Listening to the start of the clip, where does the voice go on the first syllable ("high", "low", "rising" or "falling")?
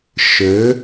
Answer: rising